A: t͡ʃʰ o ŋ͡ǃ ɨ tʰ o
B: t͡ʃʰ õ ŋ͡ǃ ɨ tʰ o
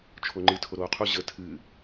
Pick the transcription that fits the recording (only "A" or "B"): A